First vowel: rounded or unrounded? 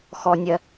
rounded